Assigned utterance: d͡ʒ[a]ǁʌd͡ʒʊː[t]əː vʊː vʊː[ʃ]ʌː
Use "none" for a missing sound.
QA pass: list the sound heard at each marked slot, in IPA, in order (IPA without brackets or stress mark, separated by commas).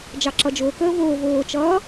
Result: ɑ, k, t͡ʃ